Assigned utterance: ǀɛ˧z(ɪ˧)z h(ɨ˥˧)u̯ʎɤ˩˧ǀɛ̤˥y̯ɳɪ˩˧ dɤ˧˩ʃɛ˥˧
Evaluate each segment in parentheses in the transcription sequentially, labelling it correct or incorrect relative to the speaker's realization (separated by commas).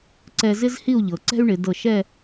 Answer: incorrect, incorrect